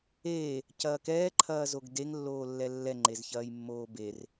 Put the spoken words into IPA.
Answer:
eː | cɐːkɛː ǃʰɐːzoɡdeŋ lːoːlːɛlːɛ ŋ͡ǃezçɐːjmːoːber

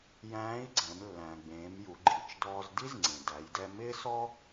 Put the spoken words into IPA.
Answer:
jæ̃ː˧˥i̯ɡ͡ǀɛ̃˩˧mlːæ̃˩ɡ͡bẽː˩˧m ju˩˧ɡ͡ǃi˩˧t͡ʃdɔː˧z di˥z ŋ͡ǀẽ˩dæ˩˧jdɛ˧ mɪː˥sɔ˥

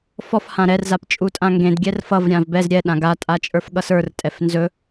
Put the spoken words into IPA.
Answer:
fɔf hãɾɛr zapt͡ʃʼutʼãŋɡẽd ɡʲɛrfʌv ɾʲãvbɛz ɾʲɛ ɗãɡa tʼat͡ʃʼə˞fɠʌsə˞r tʼɛfnzɵ

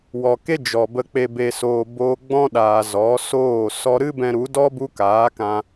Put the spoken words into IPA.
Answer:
wɔ˨ke˦ d͡ʒɔ˨bə˧ k͡pe˨be˨soː˨ boː˧ɡ͡bɔ̃˦ɗaː˨ zɔ˨˦soː˦˨ sɔ˧ɾɨ˦bɛ̃˧ ɾu˨˦dɔ˦ bu˦kaː˨˦kã˧

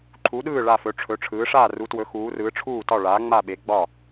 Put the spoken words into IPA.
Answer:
ǃʰu˩˥ɗɯː˥˩ ɭa˥˩fɵ˩˥ ʈ͡ʂʰɵ˩˥ʈ͡ʂʰɯː˩˥ ʂaː˥˩ru˩˥twɵ˩˥ xuː˩˥rɯː˩˥ ʈ͡ʂʰuː˥˩tɒ˥˩ɭaː˩˥ ŋ͡ma˥˩ɓe˩˥ɡ͡bɒ˥˩

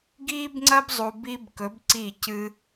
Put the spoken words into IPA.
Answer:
ɡiː˥bŋ͡ǀɐ˥b zˤu˥b i˥bkɵ˧˥b ǀiː˥˧cɨː˥

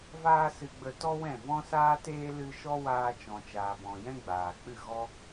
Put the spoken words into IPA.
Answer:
vaː˦sɨ˧ɡ͡bə˧ tɔ˦wɛ̃˦˨ vɔ̃˦saː˦teː˦ lɨ˦ ʃɔ˦waː˧ t͡ʃɔ̃˨t͡ʃaː˨bɔ̃˨ jɛ̃˦ɡ͡baː˨k͡pɨ˦˨ ɣɔ˦

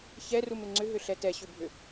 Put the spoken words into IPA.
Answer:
çɛrumɪ ŋ͡ǀʏɦʏɬɛ tɛɕʏbʱʏ

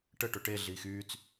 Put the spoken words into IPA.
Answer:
ʈəʈʊ ʈeɮiːx yːt͡s

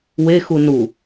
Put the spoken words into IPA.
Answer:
wexu nu

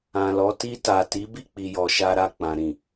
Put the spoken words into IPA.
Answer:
ã˨lɔ˨˦ ti˧ta˨ti˨˦ bi˦˨k͡pi˨jɔ˨ ʃa˧ɾa˧k͡pã˨ ɾĩ˨

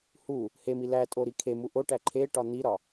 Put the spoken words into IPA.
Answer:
hu | hemi lætʼo ɾikʰemu ʔoʈæ ǃʰe ʈɒn̪iɾɒ

